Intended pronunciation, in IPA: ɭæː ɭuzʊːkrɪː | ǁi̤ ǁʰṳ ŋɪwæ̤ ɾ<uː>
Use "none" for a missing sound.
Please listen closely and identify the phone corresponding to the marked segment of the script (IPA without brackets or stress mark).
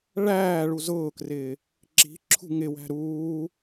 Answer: uː